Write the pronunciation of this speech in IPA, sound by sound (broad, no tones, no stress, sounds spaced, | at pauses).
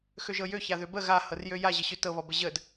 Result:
x ø ʒ ɤ j ø ç a ð ø b ə ɣ a h ɤ r j ø j a ʑ ə ɕ ø t ɤ β ɔ b ə ʑ ə d